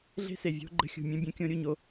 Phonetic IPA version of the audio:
ɮ e̤˦ s e˨ vʲ o̤˦ ɡ͡ǃ ə̤˦ xʲ ṳ˨ mʲ œ̃˦ bʲ œ̃˦ kʲ õ˦ ɾʲ u˦˨ ɲ o˦

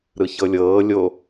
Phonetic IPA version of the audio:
ɾ ɯ ç ɤ lʲ ɤː lʲ o

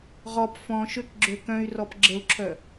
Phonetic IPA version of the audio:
ʁ ɔ p f ɔ̃ ʃ ø k ɡ͡ǁ ø k œ̃ y̯ r ɔ p ɡ͡ǁ ə u̯ ǁʰ œ

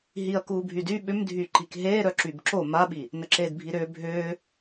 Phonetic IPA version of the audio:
ɦ i ɐ̯ k uː bʱ y d y ɓ ʏ m dʱ y ǃ i k ɦ eː ɾ œ ǁ y b ǁ o m a ɓ i | n ə ǁ eː d bʱ i ɾ ʏː bʱ ʏː

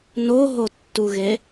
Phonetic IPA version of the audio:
n o ɦ o tː u ɣ e

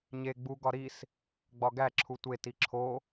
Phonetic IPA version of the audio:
ɲ e ɡ͡b u ɡ ɒ ɾ i s | ɡ͡b ɒ ɡ æ ǁʰ u tʷ e t i ǁʰ o

